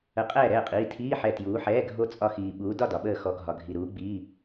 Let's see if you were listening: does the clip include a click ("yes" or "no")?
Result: no